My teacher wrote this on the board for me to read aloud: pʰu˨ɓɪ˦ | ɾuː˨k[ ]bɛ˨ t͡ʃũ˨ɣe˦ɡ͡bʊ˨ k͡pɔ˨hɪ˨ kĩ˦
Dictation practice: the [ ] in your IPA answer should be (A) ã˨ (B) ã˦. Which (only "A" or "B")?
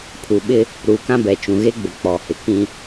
B